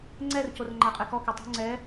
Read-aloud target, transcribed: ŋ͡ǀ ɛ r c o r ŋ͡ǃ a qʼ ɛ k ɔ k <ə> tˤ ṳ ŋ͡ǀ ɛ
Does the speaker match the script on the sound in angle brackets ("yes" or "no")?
yes